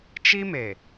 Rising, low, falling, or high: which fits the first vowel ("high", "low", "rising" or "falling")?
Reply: high